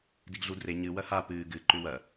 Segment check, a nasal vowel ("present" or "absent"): absent